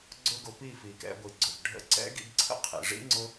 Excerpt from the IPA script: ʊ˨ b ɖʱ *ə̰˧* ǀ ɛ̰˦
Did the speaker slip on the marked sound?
no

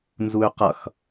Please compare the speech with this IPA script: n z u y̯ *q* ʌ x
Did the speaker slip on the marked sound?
no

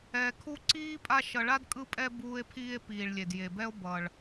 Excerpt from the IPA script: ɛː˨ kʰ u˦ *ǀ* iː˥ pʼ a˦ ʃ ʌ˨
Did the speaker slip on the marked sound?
no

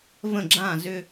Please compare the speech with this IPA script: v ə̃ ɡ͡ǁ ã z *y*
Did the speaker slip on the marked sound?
yes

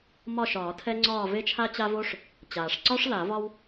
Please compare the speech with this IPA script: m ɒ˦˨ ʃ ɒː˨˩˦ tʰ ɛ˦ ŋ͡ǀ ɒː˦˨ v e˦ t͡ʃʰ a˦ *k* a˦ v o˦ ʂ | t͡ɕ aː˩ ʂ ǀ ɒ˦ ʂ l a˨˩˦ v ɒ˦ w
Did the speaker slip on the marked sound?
yes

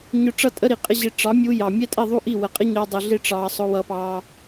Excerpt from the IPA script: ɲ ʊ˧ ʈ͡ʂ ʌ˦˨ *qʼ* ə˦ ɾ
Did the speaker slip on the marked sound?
yes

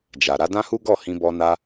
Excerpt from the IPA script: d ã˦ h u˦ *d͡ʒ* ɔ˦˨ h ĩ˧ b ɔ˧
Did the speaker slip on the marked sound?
yes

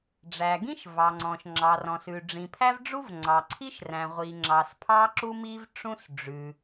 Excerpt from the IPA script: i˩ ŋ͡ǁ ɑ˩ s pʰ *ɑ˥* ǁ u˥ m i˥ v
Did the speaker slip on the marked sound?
no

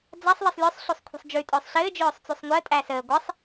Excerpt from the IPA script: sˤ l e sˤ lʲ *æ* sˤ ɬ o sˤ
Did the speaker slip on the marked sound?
yes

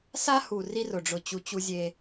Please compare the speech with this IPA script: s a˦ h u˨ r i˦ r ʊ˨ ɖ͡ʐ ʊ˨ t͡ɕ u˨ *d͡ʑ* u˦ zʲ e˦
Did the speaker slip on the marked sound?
yes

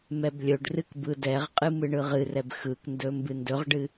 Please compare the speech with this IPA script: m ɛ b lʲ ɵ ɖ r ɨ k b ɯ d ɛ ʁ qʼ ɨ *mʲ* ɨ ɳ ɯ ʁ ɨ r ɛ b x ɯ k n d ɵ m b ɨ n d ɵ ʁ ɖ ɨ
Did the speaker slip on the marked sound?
yes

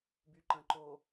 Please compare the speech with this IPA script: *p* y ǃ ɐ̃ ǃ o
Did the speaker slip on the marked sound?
yes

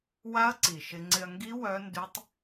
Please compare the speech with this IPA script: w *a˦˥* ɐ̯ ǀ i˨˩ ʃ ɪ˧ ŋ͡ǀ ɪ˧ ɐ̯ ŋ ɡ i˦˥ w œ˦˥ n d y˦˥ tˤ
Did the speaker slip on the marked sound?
no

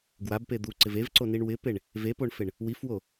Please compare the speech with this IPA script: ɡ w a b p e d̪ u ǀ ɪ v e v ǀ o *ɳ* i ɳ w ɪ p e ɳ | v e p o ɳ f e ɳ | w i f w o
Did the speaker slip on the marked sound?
yes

